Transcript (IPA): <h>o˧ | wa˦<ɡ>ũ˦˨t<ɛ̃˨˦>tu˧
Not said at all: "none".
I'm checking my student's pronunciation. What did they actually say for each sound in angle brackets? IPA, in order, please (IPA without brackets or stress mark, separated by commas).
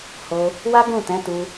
h, ɡ, ɛ̃˨˦